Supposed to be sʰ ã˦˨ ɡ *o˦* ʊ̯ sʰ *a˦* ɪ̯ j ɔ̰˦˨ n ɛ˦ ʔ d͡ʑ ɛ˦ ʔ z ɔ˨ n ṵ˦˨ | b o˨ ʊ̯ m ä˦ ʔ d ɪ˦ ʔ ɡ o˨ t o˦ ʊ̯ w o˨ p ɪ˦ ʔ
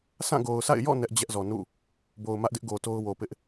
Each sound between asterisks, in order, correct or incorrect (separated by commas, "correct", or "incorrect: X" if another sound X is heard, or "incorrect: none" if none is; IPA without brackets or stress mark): incorrect: o˨, incorrect: a̰˦˨